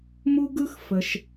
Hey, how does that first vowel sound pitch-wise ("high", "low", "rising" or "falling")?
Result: high